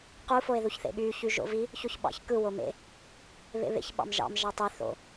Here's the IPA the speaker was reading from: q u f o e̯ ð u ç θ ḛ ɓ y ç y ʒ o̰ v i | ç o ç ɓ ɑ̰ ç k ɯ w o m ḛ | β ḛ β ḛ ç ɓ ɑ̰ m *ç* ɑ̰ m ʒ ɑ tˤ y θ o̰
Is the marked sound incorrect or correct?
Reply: incorrect